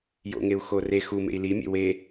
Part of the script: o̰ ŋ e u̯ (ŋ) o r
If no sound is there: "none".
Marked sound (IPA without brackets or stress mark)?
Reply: x